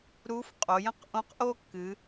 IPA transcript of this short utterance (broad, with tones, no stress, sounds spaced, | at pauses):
ɾ u˧˥ f qʼ o˩˧ j ə̃˥ q ʔ õ˧˥ q ʔ o˥ kː ɨ˩˧